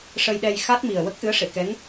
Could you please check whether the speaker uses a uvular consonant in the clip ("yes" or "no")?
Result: no